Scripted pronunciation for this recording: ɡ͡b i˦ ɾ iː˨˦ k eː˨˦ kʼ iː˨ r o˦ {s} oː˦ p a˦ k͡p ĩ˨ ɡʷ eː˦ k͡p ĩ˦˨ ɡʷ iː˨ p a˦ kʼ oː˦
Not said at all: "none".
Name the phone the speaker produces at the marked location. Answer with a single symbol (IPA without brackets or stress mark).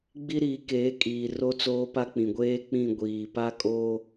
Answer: t͡s